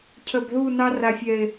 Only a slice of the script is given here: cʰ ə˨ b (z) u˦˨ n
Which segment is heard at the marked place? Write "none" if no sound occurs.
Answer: ð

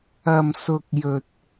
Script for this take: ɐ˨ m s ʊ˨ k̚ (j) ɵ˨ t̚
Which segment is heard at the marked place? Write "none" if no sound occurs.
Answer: j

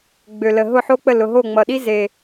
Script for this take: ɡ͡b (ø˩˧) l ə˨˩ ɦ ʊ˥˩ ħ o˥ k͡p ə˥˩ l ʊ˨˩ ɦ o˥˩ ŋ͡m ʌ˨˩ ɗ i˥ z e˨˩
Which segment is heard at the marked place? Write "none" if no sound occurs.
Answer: ø˨˩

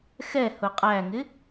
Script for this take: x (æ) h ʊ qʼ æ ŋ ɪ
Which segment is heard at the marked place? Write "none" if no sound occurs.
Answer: ɛ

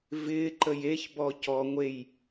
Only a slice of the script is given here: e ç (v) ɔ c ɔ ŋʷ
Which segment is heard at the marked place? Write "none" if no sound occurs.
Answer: b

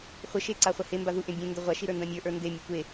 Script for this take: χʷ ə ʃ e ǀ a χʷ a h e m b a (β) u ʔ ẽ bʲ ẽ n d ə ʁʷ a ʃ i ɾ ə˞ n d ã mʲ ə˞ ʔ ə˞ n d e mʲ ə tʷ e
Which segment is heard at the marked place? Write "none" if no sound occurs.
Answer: ð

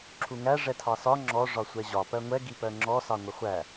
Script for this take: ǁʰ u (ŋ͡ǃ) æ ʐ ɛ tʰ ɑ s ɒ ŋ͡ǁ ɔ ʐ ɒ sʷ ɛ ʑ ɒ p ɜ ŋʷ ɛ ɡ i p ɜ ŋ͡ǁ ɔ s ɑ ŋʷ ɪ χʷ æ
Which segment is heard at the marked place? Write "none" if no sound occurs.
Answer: ŋ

